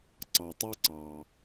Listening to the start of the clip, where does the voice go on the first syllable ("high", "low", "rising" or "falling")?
low